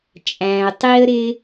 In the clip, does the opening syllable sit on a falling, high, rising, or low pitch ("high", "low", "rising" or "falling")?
low